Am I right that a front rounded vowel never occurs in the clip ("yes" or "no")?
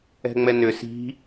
no